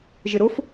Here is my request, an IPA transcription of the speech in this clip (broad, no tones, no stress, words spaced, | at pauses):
ʒɪɾʊf